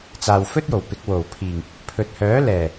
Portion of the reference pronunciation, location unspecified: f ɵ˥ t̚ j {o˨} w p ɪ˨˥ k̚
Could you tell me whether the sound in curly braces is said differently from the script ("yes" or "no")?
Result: yes